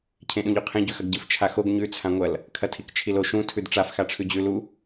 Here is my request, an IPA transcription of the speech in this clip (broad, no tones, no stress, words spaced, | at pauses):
cʰẽɗũʎoqʰẽ ɟʉxɐɡɟɨf t͡ʃʰaxoɡ ɲʉ t͡sʰãŋʷɐl | kʰɐtʰikt͡ʃʰilo ʃũ tʰʉdʈ͡ʂaf xaʈ͡ʂʰʉd͡ʑʉ lu